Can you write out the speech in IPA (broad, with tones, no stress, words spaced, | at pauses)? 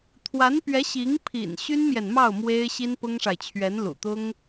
t̪ʰwa˧˥npɥɛ˧˥ɕi˧˥ŋpʰḭ˨˩n ɕy˥nmjɛ˨nmɑ˥˩ʊ̯ mwe˥ɪ̯ ɕi˥npʊ˥ŋʂa˨ɪ̯ t͡ɕʰɥɛ˧˥nlṵ˨˩t̪ʊ˥ŋ